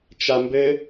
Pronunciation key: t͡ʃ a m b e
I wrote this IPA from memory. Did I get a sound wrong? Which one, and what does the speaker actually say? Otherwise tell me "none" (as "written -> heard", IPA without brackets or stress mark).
e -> ɘ